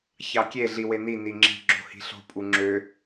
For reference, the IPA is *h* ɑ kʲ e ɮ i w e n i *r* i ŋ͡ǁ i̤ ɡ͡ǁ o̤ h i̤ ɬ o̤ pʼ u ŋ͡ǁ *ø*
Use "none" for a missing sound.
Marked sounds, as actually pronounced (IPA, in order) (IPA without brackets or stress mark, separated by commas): ç, n, ø